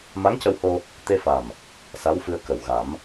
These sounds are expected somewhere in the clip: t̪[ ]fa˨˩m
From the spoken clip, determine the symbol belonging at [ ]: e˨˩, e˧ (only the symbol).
e˧